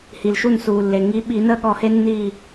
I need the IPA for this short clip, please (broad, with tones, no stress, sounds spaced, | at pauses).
h i˩ l ʃ u˧˩ n s uː˩ lː e˩ ŋ i˨˦ ɓ i˧˩˧ n əː˦ ɠ ɔ˧˩ h e˦ nː iː˧˩